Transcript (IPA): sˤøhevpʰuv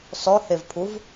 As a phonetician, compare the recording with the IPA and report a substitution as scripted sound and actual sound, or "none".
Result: none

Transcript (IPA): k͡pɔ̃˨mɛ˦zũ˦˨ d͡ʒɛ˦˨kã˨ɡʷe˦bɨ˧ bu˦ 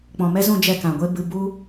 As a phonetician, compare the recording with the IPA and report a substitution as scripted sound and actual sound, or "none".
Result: none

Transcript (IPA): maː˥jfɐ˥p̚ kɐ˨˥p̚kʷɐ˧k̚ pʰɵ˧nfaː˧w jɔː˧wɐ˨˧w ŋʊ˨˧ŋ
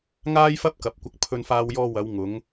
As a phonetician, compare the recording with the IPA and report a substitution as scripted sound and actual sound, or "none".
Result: m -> ŋ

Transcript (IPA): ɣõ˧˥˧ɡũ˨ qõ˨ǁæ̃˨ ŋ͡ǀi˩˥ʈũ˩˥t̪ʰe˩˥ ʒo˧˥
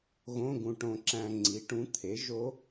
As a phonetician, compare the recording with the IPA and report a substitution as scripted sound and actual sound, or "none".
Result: q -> ʈ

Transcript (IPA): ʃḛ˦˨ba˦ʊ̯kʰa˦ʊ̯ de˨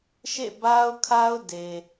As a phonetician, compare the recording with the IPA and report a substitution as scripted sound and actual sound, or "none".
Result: none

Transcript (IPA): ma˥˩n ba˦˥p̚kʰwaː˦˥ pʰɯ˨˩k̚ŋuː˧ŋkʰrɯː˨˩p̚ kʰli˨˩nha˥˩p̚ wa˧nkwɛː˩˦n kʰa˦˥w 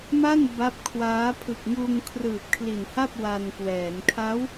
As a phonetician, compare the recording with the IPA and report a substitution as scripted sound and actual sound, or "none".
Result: none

